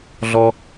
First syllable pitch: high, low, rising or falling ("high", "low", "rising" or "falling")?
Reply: low